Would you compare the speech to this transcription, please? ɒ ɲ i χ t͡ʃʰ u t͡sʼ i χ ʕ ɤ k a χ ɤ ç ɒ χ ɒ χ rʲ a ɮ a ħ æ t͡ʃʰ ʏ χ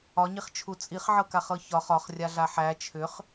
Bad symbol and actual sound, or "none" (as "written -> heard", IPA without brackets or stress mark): none